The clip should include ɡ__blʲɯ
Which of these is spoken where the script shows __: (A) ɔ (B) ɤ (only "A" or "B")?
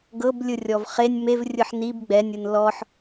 B